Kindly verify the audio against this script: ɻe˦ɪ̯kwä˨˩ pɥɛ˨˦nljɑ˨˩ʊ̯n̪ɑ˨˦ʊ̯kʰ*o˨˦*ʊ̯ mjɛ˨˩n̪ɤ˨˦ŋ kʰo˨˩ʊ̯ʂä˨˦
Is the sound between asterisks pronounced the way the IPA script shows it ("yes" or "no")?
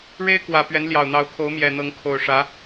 yes